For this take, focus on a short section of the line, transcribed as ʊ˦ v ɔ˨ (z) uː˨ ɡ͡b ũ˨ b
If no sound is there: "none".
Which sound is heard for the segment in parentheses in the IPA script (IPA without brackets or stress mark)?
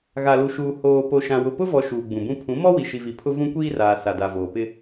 ʃ